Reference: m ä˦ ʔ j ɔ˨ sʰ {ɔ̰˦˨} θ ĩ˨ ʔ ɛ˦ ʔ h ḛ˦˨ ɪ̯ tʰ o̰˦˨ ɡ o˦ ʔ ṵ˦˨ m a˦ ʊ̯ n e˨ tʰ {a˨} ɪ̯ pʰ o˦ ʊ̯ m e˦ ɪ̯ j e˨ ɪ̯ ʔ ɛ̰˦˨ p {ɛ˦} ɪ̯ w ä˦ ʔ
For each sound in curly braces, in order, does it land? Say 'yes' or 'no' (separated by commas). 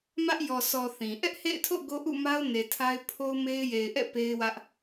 no, no, no